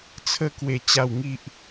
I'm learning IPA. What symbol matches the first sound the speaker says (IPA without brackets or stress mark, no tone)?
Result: t͡sʰ